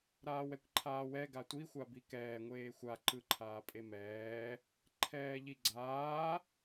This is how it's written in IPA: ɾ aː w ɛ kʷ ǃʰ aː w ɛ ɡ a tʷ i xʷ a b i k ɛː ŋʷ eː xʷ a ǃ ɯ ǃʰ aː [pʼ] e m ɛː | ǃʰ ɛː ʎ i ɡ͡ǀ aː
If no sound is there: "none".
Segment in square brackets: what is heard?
pʼ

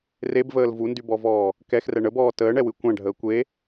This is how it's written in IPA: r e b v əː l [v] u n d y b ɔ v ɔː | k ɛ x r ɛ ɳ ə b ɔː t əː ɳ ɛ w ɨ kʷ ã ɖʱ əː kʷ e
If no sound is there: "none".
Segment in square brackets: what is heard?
v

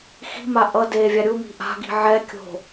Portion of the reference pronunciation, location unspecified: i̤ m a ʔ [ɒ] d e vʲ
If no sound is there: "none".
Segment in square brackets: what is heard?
ʌ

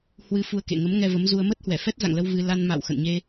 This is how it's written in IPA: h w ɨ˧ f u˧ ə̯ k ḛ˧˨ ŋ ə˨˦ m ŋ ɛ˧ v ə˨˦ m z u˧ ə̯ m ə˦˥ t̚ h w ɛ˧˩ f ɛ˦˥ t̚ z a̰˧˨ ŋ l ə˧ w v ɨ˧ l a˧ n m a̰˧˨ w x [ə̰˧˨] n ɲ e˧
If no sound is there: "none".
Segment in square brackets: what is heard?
ə̰˧˨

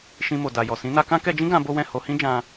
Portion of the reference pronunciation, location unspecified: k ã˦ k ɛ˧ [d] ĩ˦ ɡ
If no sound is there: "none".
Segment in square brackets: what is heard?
d͡ʒ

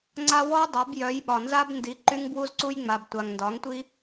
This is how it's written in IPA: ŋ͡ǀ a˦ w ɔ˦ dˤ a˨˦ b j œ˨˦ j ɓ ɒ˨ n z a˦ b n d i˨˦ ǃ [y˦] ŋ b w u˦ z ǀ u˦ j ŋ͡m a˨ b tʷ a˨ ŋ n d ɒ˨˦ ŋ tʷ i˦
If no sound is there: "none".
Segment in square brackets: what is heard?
y˦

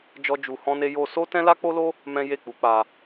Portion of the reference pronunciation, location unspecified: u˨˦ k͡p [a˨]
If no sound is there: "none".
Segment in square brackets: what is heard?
a˧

